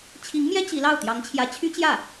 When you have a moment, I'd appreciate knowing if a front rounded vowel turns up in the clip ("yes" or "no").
yes